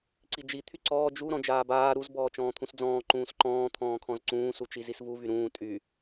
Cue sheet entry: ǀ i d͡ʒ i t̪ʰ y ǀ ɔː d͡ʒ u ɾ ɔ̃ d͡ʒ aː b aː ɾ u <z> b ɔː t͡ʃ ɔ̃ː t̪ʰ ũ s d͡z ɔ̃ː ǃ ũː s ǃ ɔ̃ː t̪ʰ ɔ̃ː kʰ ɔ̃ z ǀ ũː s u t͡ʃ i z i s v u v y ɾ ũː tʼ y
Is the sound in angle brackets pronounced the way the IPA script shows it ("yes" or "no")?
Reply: yes